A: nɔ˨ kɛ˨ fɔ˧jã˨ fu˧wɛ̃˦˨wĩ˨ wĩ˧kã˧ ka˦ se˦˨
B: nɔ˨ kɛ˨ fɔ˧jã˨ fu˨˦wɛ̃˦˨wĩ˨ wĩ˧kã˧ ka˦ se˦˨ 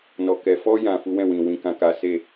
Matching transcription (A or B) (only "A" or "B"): B